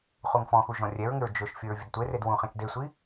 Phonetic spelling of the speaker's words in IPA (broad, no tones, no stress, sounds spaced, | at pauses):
χ u ŋ f ɔ̃ x u ʒ ɔ̃ rʲ ɛ ɹ ŋ ɪ ɹ d͡ʒ ʊ ʃ fʲ o ɹ vʲ ʊ d tʷ e r e d w ũ χ ẽ t͡ʃ d e sʷ i